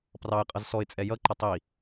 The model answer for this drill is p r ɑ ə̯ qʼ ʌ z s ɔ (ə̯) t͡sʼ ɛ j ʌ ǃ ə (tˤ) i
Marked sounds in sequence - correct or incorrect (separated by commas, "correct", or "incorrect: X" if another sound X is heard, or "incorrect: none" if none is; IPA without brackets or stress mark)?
incorrect: ɪ̯, correct